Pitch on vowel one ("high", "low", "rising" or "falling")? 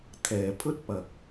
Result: low